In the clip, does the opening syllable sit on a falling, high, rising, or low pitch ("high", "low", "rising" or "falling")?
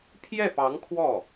falling